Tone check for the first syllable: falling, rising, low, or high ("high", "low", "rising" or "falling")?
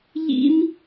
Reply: high